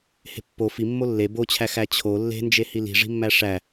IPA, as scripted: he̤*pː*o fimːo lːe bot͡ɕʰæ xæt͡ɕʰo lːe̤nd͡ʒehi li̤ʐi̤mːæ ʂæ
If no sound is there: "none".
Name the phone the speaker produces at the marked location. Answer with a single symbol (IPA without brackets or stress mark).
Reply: pː